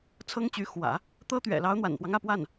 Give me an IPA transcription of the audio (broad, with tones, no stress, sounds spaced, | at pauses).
t͡sʰ ɤ˥ ŋ t͡ɕ y˧˥ x w ä̰˨˩˦ | t̪ ɤ˥ t̪ ɥ ɛ̰˨˩ l ɑ˧˥ ʊ̯ n̪ w a̰˨˩ n p w ɑ˦ ŋ ä˥˧ p w a˥˩ n